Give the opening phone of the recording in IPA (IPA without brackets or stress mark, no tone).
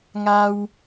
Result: ŋ